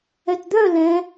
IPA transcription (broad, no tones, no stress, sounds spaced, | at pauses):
ɛ t d̪ œ l ɛ̃